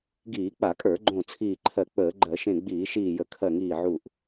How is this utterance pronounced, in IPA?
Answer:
ɡ iː˧˩˧ k͡p a˧˩˧ kʼ ə˞˧˩˧ ɡ͡ǃ õ˧˩ t͡sʰ iː˧˩ ǃʰ ɜ˧˩ k͡p əː˧˩˧ ɡ͡ǃ ɜ˧˩˧ ʃ ẽ˧˩ ɡ͡b iː˧˩˧ ʃ iː˧˩ j ə˧˩˧ kʰ ɜ˧˩ ŋ iː˧˩ ʕ u˧˩ ʔ

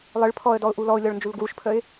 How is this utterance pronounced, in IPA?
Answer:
lˠ ɨ ɭ pʰ ɔ ə̯ d ɔ ʊ̯ ʔ u l ɔ ʊ̯ lʲ ɔ ɭ n d͡ʒ u l ɡ w u ʃ pʰ ə ɪ̯

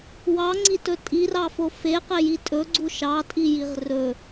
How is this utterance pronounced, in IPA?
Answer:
w ɑ ŋ͡ǀ i t ɵ tʼ i r ɑ f o f e q e j i tʼ ɵ ɡ͡ǀ u ʃ ɑ tʼ i j i ʁ r ɵ

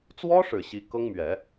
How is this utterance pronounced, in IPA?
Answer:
t͡s w ɔ˥ ʂ ɻ̩˨˩ ɕ i˧˥ k ɤ˥ ŋ m ɥ ɛ˨˩˦

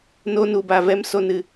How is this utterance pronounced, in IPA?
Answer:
n o˦ n u˧ b a˧ v ɛ˦ m s o˧ n ɨ˧

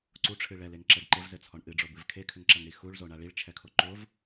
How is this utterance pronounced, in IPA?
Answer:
ǀ u ʈ͡ʂʰ ɨ ɭ ɛ l e ŋ ǁ ɛ ɖ ǃ ɘ v z ɘ t͡sʰ ɔ ɳ ʔ ɨ ɖ͡ʐ o b ɨ v kʰ e kʰ ɘ ŋ ǁ ɐ ŋ ɽ i x u ɭ z o ɳ a ɭ i ɭ t͡ʃʰ ɛ kʰ o ǃ o v

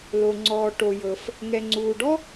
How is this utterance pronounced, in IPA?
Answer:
l o˩ ŋ͡ǀ ɔː˩ ʈ o˩ j ɤ˩ f | ŋ ɛ˩ ŋ͡ǀ uː˩ ɖ ɔ˥

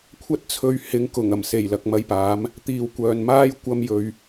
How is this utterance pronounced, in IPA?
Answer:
kʷʰ ɐ˥ t̚ t͡sʰ ɵ˧ ɥ h ɪ˨˥ ŋ k ʊ˨˩ ŋ ɐ˨˩ m s e˨˩ j l ɐ˨ k̚ m ɐ˧ j p aː˨˥ m | t̪ iː˨ w kʷ œː˨ n m aː˥ j kʷ ɐ˧ m j ɵ˨ ɥ

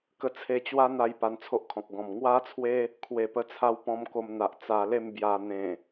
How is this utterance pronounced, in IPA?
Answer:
k ə˧ t͡sʰ e˧ t͡ɕ w a˦ n̪ a˧ j p a˧ n t͡sʰ o˦ ʔ kʰ ɔ̃˨ k̚ ɡ ɔ̃˨˩ m ŋ w a˦ t͡sʰ w e˦ | kʰ w e˨˩ p ə˧ t͡sʰ a˧ w p ɔ̃˧ m k o˧ m n̪ a˨ ʔ t͡s a˧ l e˥˧ m b j a˧ n̪ ẽ˨˩

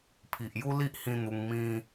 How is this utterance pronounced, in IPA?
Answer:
pʰ i˨ ʔ j u˦ l i˦ ʔ h ĩ˦ n̪ u˧ ŋ m ĩ˧

